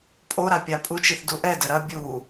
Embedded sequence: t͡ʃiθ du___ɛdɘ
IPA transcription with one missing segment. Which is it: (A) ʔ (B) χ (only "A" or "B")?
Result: A